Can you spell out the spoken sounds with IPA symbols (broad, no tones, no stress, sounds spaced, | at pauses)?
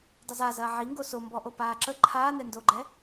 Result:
dˤ ə z a z ɐː ʕ i ŋ ɡ o s o m b ɔ ʔ o p aː ǁ ə ǃʰ aː n ɛ n d o ɡ͡ǃ ɛ